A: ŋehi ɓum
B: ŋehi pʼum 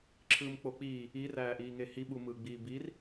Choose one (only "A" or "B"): A